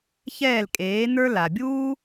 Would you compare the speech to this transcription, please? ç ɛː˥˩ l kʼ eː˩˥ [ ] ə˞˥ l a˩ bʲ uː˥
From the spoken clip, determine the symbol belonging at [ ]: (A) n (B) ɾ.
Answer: A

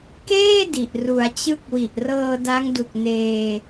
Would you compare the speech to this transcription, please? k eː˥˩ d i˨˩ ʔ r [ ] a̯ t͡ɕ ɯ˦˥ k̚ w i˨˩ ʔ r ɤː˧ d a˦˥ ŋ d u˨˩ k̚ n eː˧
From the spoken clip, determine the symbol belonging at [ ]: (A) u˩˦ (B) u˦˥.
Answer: A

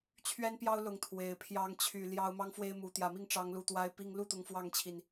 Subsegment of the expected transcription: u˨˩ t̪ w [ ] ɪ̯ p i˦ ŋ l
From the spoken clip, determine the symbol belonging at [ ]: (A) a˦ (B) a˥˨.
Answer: A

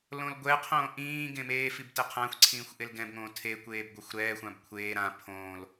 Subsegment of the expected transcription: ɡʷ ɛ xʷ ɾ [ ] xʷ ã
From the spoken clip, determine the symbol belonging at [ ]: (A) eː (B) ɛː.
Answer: B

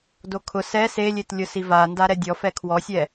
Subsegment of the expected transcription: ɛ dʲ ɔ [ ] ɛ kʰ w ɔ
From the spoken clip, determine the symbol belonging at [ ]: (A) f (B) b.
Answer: A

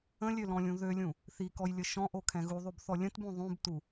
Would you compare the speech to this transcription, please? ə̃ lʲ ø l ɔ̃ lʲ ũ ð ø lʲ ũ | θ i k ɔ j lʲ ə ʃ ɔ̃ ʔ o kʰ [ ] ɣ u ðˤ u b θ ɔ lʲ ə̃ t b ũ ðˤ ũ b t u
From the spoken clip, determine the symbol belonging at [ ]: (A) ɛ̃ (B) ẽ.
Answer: A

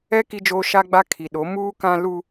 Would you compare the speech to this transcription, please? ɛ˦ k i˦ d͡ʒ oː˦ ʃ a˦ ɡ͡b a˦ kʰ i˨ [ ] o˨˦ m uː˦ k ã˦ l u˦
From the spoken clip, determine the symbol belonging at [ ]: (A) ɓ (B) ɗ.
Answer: B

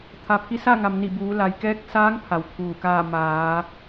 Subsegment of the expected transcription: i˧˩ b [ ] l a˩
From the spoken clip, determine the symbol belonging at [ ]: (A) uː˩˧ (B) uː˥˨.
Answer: A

